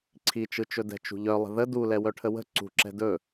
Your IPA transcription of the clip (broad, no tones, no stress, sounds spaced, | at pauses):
ǀʰ i t͡ʃ ɯ t͡ʃ ɵ d ɛ̤ t͡ʃ ṳ ʎ œ lˠ ə̤ ð ə d u l ɛ w œ ʈʰ ə w ə̤ ǀ ṳ ǁ ɛ̤ d ɵ